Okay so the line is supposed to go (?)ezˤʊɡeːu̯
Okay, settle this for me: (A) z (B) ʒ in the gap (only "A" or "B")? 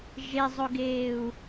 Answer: B